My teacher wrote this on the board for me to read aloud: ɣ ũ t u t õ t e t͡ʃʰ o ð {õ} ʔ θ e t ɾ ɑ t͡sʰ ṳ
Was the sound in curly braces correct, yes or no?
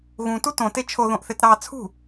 yes